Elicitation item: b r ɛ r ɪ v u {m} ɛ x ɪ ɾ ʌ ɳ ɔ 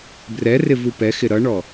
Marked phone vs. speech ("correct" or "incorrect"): incorrect